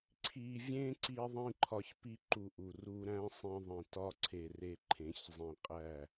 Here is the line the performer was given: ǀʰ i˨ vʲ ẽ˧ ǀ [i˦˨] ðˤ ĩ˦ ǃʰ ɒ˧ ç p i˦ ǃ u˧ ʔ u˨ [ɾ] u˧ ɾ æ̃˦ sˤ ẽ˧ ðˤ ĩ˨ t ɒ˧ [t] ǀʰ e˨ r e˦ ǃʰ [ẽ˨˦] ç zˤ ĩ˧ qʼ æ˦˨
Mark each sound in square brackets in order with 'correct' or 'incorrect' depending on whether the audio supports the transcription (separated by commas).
incorrect, incorrect, incorrect, correct